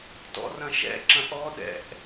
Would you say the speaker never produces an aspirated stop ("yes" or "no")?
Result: yes